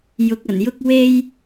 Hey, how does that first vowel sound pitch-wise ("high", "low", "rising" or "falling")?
low